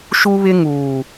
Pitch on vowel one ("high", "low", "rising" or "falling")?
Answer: high